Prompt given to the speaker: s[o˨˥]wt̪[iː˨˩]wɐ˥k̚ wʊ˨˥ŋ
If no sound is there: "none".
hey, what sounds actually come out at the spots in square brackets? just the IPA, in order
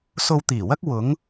o˧, iː˨˩

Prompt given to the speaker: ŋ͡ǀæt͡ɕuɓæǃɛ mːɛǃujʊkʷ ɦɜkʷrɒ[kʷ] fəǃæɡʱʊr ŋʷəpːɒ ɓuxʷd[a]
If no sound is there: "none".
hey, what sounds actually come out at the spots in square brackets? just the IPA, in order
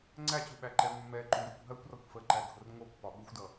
kʷ, ʌ

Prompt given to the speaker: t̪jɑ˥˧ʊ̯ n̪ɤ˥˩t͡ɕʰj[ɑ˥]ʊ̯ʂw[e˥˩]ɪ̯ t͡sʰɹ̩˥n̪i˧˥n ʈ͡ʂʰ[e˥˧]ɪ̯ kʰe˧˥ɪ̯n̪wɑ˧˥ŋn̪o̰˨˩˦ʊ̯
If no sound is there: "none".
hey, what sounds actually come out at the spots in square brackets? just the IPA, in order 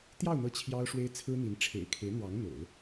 ɑ˥, e˥, ḛ˨˩

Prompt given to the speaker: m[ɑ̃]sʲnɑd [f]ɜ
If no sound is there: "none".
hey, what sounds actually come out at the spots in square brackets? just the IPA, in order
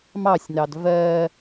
ɑ, v

